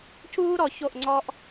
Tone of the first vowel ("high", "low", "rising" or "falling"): high